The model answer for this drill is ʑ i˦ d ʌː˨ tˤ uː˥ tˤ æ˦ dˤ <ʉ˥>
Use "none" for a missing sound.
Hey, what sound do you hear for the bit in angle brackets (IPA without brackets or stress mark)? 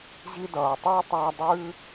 ʉ˥